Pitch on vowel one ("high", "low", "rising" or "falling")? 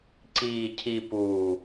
low